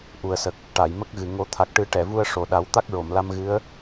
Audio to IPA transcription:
ʔ u˨˩ ə̯ s ə˨˩ k̚ | ʈ a˨˩˨ j m ə˦˥ k̚ ɣ ɨ˨˩ ŋ o˨˩˦ t̪ʰ a˨˩ k̚ ʈ ɨ˨˩˦ ʈ ɛ˨˩˨ v u˧ ə̯ ʂ o˨˩ ɗ a˨˩˦ w t̪ a˦˥ k̚ ɹ o˨˩˨ m l a˧ m ɣ ɨ˧˥ ə̯

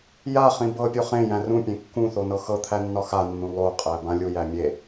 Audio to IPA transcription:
j a χ ĩ b ɤ pʲ o χ ẽ j æ̃ r ũ pʲ ẽ kː ũ θ o n ɤ x ɤ t̪ʰ æ nː ɒ x a nː ũ lˠ o qʼ æ b ã lʲ u j æ mʲ e

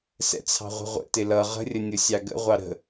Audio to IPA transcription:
s ɛ̰ t͡sʰ ɑ̤ ʁʷ ə̤ ʁʷ ə̰ t ɪ l ʌ ʁ ə̤ rʲ ə nʲ ʊ sʲ ɑ ɡ ə̰ ʁʷ ɑ ɾ ə̤

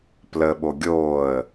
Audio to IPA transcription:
p l ə ɓ o ɡʲ oː ə̯

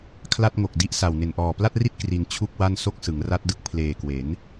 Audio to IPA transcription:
kʰ l a˥˩ t̚ ŋ o˨˩ k̚ d i˥˩ ʔ s a˨˩ w n e˨˩ n ʔ ɔː˨˩ p l a˥˩ t̚ r i˥˩ t̚ k r i˧ n t͡ɕʰ u˥˩ k̚ w a˥˩ n s o˥˩ k̚ s ɯ˩˦ ŋ r a˦˥ t̚ d ɯ˦˥ k̚ pʰ l eː˨˩ k w e˩˦ n

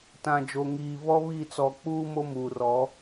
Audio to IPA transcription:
t ã˨ d͡ʒ o˨ ŋ iː˨ β ɔ˦ β i˦˨ t͡s ɔ˨ k͡p uː˦ m o˦ m uː˨ r ɔ˨˦

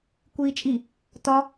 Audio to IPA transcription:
kʷ iː t͡ʃʼ i | t ɒ

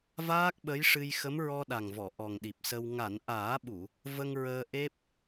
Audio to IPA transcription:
v aː˦˥ k̚ ɓ ə˧˥ j ʂ ɨ˧ j x ə˧˥ m ɹ ɔ˧ ɗ a˨˩ ŋ v ɔ˨˩˨ ʔ ɔ˨˩ ŋ ɗ i˨˩ p̚ s ə˧ w ŋ a˨˩˨ n ʔ aː˨˩˦ ɓ u˨˩˨ | v ə˧ ŋ ɹ əː˧ ʔ e˦˥ p̚

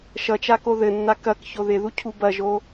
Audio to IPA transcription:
ʃ ʌ t͡ʃ a k o ð ɘ nː a k ɐ k ç o ð ɪ ð u cʰ u b ɐ ʒ o

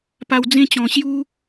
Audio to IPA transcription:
p a˧ w d͡z ẽ˦ t͡ɕ ɔ̃˨˩ ɕ j u˦

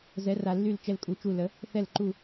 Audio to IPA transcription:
z ɛ˨˥ r a˨ lː y˦˨ l t͡ʃ ɛ˦˨ l kʼ u˨˥ t͡ʃ u˦˨ l ə˨˥ | θ ɛ˦˨ l ǃ u˦˨

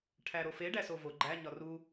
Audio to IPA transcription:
ʈʰ æ ɾ o f e ɖ æ s o v o ɡ͡ǃ æ ɲ ɒ r u

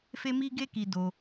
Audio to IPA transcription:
f e˦ m i˦ ɡ e˦ k i˧ d o˧

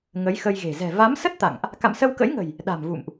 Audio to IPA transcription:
ŋ ə˨˦ j x ə˧ j ɣ e̤˨˩ z ɛ̤˨˩ v a˨˦ m s ə˦˥ t̚ t̪ a̰˧˨ ŋ ʔ | k a̰˧˨ m s ə˧ w k ə̰˧˥ j ŋ ə̤˨˩ j | ɗ a̤˨˩ m v ṵ˧˨ m ʔ

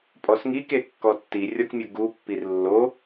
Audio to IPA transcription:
pʼ ɔ s ŋ i k e kː ɔ tː i rʲ ɔ k mʲ u ɡ u pː i r lː o

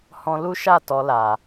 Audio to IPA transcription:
h ɔ̃˧ l u˦ ʃ a˦˨ t ɔ˧ l a˨

